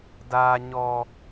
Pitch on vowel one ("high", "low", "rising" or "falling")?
low